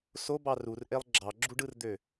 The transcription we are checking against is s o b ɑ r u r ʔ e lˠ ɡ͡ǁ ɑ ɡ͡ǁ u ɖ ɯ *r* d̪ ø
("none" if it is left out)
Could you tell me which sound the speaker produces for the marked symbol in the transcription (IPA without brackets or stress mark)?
r